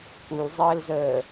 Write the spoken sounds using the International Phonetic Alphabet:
k u l zˤ əː l z əː

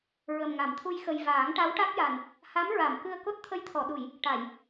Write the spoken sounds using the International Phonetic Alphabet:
ɹ ə˨˩ m ŋ a˨˩˨ m t̪ʰ u˧ j x ə˨˩ j v aː˨˩˦ ŋ ʈ a˧˥ w ʈ a˦˥ k̚ j a˨˩ n | h a˧˥ m ɹ a˨˩˨ m k ɨ˧ ə̯ k o˦˥ t̚ t̪ʰ ə˧˥ j t̪ʰ ɔ˨˩˨ ɗ u˨˩˨ j | ʈ a˨˩˨ j

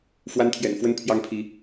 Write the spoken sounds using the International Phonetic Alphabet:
f w a˦ n t̪ʰ j ɛ̰˨˩ n f w ə˦ n pʰ j ɑ˦ ŋ pʰ i˨˦

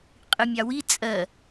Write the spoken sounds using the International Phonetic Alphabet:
qʼ ɨ mʲ ɑ w i t͡sʼ ɜ

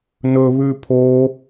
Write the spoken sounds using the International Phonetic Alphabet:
n ɵ β ʉ pʰ o

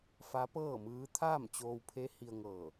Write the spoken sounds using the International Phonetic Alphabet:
f a˧˥ p ɤː˥˨ m ɯː˧˥ t̪ʰ aː˥˨ m t͡ɕ oː˧ w pʰ e˧˥ h i˧ ə̯ ŋ ɤː˧˩

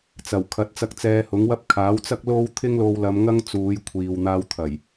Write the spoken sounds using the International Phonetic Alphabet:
t͡s ɐ˨˩ w kʰ ɐ˨˥ t̚ t͡s ɐ˧ k̚ t͡s ɛː˧ h ʊ˨˥ ŋ w ɐ˥ p̚ kʰ aː˨˥ w t͡s ɐ˥ k̚ l o˥ w t̪ʰ ɪ˥ ŋ l o˧ w l ɐ˨˧ m ŋ ɐ˥ ŋ t͡s uː˨˧ j kʷʰ iː˨ w n̪ aː˧ w t̪ʰ ɐ˨˩ j

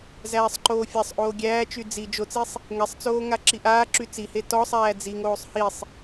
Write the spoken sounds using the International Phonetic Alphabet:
z æː sˤ ǃ oː fʲ a sˤ ʔ oː ɡʲ æː t͡ʃ y d͡z i d͡ʒ o t͡s i sˤ | ŋ ɛ sˤ t͡s oː ŋ a ǁ i ʔ aː ǁ y t͡s i h e t ɔ sˤ æː d͡z i ŋ oː sˤ h i sˤ

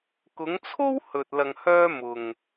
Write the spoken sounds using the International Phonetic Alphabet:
k ʊ˨˧ ŋ t͡sʰ o˥ w h ɵ˧ t̚ l ɐ˧ ŋ h œː˥ m ʊ˨ ŋ

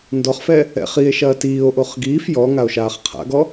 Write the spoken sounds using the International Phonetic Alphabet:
n d ɔ χ f ɛ | ɛ̰ χ i e̯ ʃ ɐː t iː o̯ ʔ o χ ɡ iː f j ɔ ŋ a o̯ ʃ aː χ qʰ a̰ ɡ ɔ

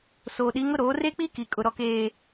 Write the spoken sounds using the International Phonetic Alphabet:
s oː˨ ɗ i˨˦ ŋ ʊ˦ ɾ oː˨˦ r e˦ k͡p i˦ k i˨ kʼ ʊ˨ ɾ ɔ˨ k eː˨

